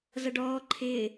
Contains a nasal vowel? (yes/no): no